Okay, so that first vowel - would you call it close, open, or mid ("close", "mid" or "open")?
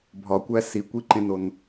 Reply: open